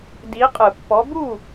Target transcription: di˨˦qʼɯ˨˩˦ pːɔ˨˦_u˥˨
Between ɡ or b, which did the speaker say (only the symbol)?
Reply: b